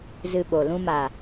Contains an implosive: yes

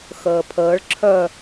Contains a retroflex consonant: yes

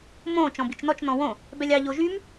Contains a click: no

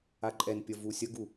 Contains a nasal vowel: no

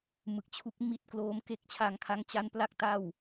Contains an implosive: no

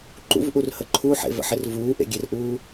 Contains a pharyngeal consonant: yes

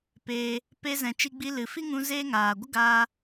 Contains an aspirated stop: no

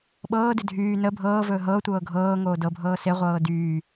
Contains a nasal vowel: no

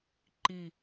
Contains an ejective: no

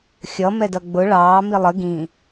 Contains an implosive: no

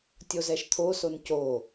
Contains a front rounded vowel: no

